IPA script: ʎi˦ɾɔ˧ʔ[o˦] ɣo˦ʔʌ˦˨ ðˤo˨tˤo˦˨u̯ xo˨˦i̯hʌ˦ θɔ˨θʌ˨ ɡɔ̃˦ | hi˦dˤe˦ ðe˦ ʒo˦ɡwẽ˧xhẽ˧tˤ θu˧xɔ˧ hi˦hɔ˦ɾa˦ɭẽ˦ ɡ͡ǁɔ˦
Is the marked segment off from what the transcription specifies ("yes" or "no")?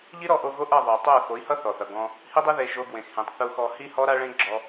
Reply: yes